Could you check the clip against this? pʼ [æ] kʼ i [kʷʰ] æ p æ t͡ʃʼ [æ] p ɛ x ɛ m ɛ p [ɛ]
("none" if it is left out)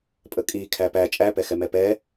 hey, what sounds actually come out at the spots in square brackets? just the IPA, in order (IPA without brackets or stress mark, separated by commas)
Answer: ə, kʰ, æ, ɛ